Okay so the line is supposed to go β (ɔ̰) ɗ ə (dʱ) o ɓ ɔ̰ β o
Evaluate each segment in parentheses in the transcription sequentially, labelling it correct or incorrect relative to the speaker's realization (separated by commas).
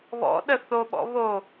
correct, incorrect